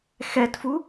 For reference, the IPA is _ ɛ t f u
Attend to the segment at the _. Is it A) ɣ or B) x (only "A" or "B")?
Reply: B